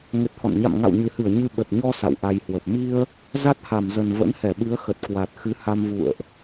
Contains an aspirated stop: no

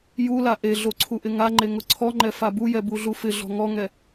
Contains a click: yes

